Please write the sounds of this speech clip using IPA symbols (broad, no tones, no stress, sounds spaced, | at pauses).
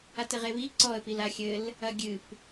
a t ɘ ʁ e β i ǀ ɔ ə̯ p i l a xʲ ɘ l | ɐ ɡʲ ɨ p